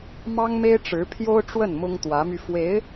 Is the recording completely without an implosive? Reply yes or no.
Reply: yes